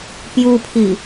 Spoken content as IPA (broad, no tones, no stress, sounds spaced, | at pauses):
p j u pʰ i